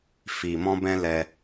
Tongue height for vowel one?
high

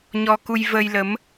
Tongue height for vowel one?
mid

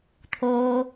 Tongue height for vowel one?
mid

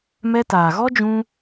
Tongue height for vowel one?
mid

